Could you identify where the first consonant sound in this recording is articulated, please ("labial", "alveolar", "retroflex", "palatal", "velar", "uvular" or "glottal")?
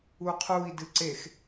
uvular